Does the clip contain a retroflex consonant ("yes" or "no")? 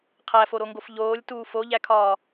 no